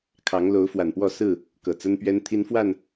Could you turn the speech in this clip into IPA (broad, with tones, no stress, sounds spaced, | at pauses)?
kʰ ɑ˨˦ ŋ l o˨˦ ʊ̯ f w a˨˩ n p w ɔ˥˨ s ɹ̩˥˨ | k ɤ˨˩ t͡s ə˦ n p ɥ ɛ˦ n t̪ʰ i˦ n f w a˥˨ n